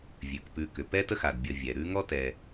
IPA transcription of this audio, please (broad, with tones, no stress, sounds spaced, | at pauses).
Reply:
vʲ ʉ˩ k p ʉ˨ k ʏ˩ p ɛ˥ t ə˥ x a˩ d bʲ ə˨ vʲ ɛ˩ ɾ ʉ˦ ŋ ɔ˥ t ɛ˨